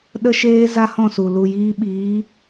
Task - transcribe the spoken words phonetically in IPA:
ɗ ə˦ ʃ eː˦ z a˦ h ɔ̃˦˨ s u˨ l u˨ j iː˧ ɓ iː˨˦

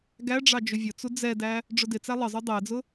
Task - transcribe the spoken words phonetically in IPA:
ɡ æ ɖ͡ʐ ɑ d͡ʒ ʊ vʲ ʊ t͡s u d͡z ɛ d æ | ɖ͡ʐ ʊ d ɪ t͡s æ lˠ ə zˤ u dˤ æ d͡z ʊ

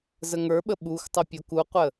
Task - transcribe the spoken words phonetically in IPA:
z ə ŋ ə˞ ɓ ə ɓ u x tˤ ə pʲ o k u qʷ ə

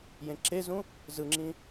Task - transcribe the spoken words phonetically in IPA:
j ẽ ǁ e z ũ | z ɯ ŋ͡ǁ ĩ

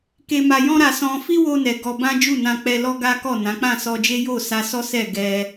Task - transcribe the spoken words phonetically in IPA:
k e˧ m a˧ j ɔ̃˦ ɾ a˧ s ɔ̃˧ f i˦ w o˧ n ɛ˨ ɡ ɔ˧ b ã˦ d͡ʒ u˦˨ n ã˧ k͡p ɛ˧ l ɔ˦ ɡ a˦ k ɔ˦˨ n ã˨˦ k͡p ã˦˨ s ɔ˧ d͡ʒ e˦ j o˦˨ s a˧ s ɔ˦ s ɛ˦˨ ɡ ɛ˧

